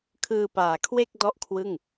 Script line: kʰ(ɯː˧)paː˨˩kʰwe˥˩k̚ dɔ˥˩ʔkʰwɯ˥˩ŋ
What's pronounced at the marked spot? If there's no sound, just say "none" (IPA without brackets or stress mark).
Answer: ɯː˧